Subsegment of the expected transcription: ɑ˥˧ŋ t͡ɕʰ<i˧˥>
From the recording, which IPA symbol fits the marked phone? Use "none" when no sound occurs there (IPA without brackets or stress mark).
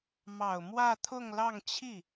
i˥˩